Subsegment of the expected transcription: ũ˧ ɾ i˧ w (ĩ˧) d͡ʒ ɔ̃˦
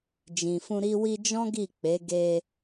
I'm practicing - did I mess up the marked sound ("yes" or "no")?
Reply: yes